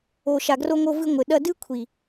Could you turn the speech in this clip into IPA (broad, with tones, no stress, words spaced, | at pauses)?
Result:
o˨ʃa˨ɡro˧ŋo˧ vɨ˧ŋʷɘ˨ ɗɐ˧dɨ˦kʷʰi˨